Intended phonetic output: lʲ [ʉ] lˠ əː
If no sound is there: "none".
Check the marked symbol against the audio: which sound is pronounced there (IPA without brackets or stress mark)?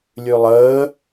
ʉ